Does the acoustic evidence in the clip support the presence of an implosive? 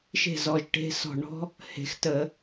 no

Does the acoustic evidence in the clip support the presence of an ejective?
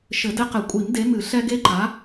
yes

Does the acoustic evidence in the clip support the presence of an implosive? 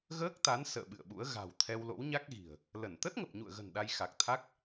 yes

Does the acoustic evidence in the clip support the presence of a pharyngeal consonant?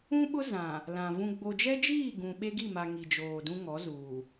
no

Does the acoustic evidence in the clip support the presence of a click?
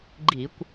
yes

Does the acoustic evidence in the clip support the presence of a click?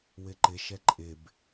yes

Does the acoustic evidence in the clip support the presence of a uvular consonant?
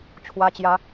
no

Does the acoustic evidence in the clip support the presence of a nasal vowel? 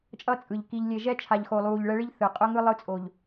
no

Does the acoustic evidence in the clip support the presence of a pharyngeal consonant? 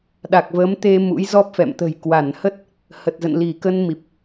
no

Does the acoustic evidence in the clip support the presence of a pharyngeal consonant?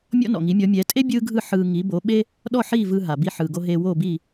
yes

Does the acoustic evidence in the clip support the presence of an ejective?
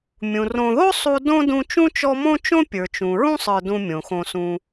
no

